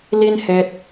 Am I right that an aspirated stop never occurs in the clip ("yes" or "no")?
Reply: yes